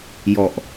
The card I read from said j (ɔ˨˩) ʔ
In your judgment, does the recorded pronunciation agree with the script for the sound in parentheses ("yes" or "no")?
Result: yes